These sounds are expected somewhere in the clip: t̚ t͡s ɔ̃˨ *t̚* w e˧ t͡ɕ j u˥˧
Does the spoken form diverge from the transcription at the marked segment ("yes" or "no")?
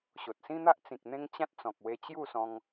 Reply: yes